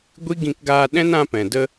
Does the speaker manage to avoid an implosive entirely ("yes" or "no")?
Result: no